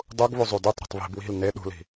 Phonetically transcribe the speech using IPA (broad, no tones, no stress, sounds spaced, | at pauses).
dˤ u ɡ β u zˤ u d y tˤ ɾ ṳ tˤ β i̤ b w i̤ l n e ɗ ṳ l i̤